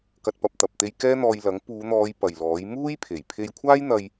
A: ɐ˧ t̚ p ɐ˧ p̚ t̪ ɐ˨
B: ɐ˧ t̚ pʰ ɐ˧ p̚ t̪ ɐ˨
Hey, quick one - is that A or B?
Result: A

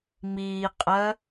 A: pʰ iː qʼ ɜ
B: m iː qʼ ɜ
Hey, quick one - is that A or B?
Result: B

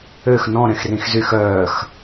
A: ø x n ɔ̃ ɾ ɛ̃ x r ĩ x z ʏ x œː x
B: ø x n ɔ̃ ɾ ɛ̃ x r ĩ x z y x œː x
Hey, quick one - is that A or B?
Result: B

